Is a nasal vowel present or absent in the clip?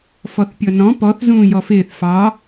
present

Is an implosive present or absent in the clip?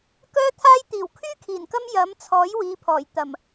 absent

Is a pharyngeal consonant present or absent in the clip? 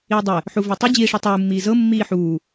present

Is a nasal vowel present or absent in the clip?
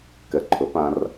present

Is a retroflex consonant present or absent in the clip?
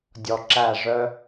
present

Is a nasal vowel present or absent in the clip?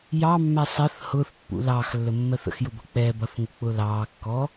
absent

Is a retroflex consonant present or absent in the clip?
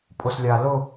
absent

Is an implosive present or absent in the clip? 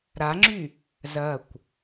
absent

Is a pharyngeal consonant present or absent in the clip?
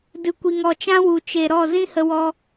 absent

